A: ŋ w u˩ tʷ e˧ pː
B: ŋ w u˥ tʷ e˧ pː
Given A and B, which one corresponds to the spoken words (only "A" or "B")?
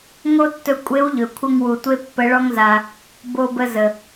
A